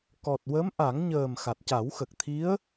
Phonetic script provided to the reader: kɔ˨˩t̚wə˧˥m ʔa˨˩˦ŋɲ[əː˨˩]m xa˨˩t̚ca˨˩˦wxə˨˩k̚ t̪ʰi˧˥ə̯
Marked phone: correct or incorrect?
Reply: correct